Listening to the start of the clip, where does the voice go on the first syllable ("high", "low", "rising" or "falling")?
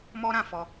high